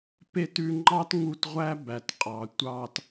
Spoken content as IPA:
p e˦ t ʉ˧ ŋ͡ǃ ɑ˦ t ŋ u˧ t ʁʷ æ˦ b æ˨ t qʼ ɑ˨ tʷ ɑ˦ t

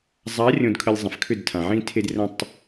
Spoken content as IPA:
zˤ a˨˦ rʲ õ˨ d kʰ ə˨ lʲ zˤ ə̃˨ f kʰ ʏ˦˨ d tʰ ã˨ ʕ ĩ˦ tʰ e˦ d r ə̃˦ tˤ

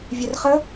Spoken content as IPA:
vʲ œ r χ ə

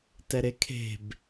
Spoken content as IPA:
t ɛ ɾ e kʰ e̤ b

